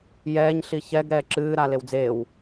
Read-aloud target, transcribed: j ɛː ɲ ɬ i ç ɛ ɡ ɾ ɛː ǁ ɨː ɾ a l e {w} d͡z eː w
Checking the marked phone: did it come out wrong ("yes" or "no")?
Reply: no